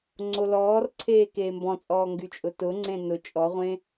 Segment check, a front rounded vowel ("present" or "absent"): present